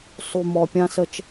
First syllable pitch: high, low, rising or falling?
low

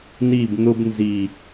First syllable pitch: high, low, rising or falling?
falling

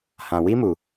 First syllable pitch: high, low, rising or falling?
low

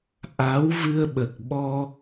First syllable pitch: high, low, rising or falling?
rising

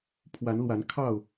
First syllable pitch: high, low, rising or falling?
rising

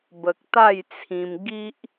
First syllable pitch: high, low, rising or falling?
low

